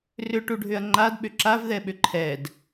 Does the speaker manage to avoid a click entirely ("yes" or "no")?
no